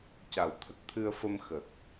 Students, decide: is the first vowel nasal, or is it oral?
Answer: oral